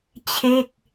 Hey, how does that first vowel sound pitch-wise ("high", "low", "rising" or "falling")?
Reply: falling